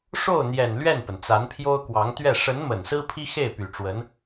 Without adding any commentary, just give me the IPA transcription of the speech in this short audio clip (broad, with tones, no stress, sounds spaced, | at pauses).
ʂ o˥˩ ʊ̯ n̪ j ɛ˨˩ n l ɥ ɛ˥˩ n p ə˩ n t͡s a˧˥ n pʰ j o˥ ʊ̯ k w ɑ˧˥ ŋ t̪ ɥ ɛ˥˩ ʂ ə˧˥ n m ə˨˩ n s ɹ̩˥ pʰ i˥ x e˥˩ ɪ̯ p y˨˩ ʈ͡ʂ w ə˧˥ n